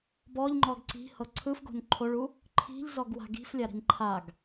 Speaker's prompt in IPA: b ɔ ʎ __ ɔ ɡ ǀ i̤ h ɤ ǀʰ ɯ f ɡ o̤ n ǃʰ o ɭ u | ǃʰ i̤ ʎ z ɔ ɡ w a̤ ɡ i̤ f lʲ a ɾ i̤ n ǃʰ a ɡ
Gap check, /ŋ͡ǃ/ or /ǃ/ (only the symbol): ŋ͡ǃ